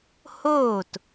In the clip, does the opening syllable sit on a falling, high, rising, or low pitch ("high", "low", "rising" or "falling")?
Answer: falling